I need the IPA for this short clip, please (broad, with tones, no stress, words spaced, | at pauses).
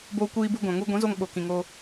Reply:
boː˦kʷiː˦bu˦ ɡʷã˨ŋu˦ ɡʷĩ˨˦zo˧ŋ ɓo˨ kĩ˨ŋo˧